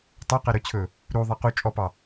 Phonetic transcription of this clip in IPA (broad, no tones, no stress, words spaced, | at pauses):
tˤœ qɛɾɵt͡ɕʰɵ | ɾu ðˤɛqu t͡ʃʼɔpɑ